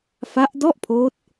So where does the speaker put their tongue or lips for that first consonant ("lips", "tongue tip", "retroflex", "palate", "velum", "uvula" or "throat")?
lips